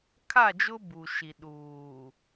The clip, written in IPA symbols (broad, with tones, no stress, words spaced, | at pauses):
kʰa˦˨d͡ʒʊ˦ bu˨ʃi˨ ɗuː˨